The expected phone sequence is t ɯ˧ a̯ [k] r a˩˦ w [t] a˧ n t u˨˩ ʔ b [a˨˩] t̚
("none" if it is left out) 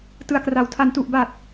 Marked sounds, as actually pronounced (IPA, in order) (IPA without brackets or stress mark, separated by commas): k, tʰ, a˨˩